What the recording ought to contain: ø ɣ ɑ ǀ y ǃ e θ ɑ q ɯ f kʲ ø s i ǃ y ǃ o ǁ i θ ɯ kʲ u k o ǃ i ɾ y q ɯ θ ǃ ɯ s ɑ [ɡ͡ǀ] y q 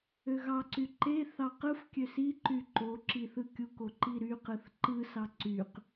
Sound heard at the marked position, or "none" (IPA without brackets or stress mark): ǀ